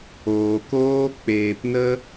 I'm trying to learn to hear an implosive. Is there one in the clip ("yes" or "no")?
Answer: no